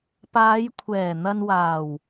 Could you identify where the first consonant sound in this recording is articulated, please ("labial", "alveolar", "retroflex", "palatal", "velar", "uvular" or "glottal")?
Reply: labial